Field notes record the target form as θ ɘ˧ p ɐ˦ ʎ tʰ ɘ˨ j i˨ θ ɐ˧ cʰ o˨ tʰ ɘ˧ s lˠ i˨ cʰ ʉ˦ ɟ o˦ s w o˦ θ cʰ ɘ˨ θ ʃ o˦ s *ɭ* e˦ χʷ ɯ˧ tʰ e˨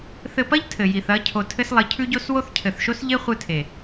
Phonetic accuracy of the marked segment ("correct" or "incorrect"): incorrect